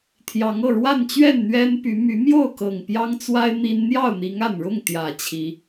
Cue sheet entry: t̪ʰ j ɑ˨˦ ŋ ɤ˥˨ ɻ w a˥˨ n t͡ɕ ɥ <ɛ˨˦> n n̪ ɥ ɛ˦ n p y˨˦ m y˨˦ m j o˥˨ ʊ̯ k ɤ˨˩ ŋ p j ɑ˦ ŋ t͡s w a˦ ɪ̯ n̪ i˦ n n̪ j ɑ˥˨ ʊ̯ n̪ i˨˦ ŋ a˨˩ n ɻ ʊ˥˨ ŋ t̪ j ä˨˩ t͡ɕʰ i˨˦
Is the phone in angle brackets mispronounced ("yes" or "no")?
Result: yes